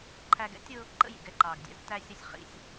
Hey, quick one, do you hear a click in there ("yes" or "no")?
yes